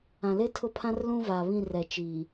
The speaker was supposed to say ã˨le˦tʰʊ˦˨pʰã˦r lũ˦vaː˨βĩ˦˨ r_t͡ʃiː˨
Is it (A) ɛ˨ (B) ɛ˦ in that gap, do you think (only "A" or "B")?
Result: A